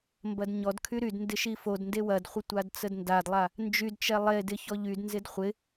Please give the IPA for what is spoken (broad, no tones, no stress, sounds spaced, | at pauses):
m b ɐ d ɲ ɔ d kʰ y ɾ y d n d ɪ ʃ i f o d n d e w ɐ d χʷ ɪ tʷ a d t͡s ə d n d a d lˠ a | n d͡ʒ y d t͡ʃ ɛ lˠ e d ɪ ç ɔ ʎ y d n z ɪ d χʷ ɪ